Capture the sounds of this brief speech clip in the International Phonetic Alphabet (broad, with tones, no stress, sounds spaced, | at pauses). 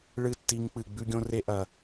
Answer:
ɭ ɨ˦˨ tː i˧ ŋ k͡p ɨ˨ ɡ͡b ʉ˦ ɡʲ õ˦ r e˦ ʔ ɐ˨